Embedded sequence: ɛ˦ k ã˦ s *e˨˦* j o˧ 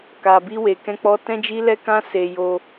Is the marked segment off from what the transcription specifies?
yes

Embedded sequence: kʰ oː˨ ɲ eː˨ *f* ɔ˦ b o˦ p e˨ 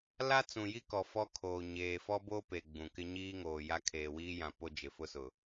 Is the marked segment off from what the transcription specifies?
no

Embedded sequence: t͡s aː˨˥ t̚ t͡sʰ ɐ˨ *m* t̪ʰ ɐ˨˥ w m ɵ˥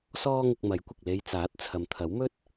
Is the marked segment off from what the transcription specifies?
no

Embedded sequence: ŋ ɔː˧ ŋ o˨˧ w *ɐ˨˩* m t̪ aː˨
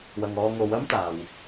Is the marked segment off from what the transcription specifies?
yes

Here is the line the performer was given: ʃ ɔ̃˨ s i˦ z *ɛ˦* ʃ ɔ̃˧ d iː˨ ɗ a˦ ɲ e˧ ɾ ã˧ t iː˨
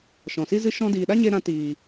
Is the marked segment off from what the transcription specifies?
yes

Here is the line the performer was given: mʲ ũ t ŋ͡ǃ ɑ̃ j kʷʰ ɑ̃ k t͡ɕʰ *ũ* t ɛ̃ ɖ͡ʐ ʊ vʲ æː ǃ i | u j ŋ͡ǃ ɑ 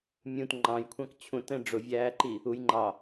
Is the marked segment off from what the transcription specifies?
no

